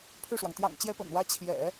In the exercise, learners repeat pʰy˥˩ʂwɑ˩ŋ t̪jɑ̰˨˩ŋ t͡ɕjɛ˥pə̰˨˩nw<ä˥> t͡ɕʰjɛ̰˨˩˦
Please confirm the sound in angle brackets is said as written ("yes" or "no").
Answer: yes